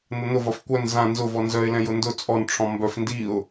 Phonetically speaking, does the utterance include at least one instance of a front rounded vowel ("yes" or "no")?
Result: yes